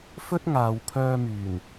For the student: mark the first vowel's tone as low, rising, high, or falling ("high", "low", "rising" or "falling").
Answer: high